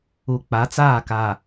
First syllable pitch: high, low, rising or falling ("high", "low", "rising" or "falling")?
low